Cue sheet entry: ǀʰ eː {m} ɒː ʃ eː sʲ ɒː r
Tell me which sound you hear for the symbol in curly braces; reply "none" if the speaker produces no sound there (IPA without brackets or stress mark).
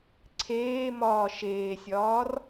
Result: m